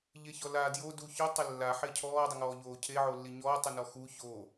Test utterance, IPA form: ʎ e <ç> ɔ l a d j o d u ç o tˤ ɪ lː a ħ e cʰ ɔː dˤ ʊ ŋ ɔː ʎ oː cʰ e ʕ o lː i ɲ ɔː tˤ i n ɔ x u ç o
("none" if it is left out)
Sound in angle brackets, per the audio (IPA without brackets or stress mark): ç